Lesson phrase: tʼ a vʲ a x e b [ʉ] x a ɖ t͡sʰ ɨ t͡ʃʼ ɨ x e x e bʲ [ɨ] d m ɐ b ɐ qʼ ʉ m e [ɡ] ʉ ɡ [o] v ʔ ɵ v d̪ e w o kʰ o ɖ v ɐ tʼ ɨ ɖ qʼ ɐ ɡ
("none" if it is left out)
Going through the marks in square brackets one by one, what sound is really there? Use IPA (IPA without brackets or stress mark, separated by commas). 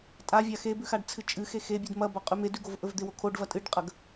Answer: ʉ, ʉ, d, o